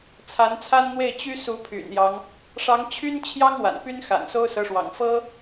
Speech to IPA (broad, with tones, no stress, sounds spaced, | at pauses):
t͡sʰ a˧˥ n t͡sʰ a˥ n n̪ w e˥˩ ɪ̯ t͡ɕ y˥ s u˧˥ pʰ y̰˨˩ n j ɑ˦ ŋ | ʂ ɑ˧˥ ŋ t͡ɕʰ y˥ n t͡ɕʰ j ɑ˥ ŋ w a̰˨˩ n p y˥ n x a̰˨˩ n s o˥ ʊ̯ s ɤ˧˥ ʂ w ɑ̰˨˩ ŋ f ɤ˥